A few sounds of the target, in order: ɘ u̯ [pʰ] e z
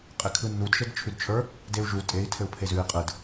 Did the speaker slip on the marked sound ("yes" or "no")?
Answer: no